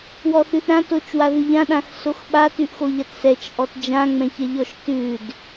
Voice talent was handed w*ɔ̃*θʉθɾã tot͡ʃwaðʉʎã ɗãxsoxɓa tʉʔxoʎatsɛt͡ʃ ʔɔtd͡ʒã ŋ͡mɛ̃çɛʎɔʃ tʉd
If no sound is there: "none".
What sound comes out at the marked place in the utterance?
ɔ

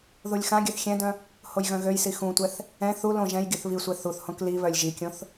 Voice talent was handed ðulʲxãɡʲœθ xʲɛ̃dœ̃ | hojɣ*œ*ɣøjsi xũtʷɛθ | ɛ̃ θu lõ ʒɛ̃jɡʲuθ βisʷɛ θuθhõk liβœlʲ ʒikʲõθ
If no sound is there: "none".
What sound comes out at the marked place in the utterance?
œ̃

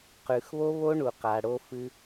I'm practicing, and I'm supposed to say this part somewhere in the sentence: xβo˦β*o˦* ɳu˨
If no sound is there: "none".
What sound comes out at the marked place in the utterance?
o˦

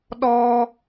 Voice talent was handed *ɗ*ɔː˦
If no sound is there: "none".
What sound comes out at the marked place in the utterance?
ɗ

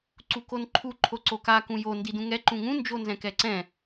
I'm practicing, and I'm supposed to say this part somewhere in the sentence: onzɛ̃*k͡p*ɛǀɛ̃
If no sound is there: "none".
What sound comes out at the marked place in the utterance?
k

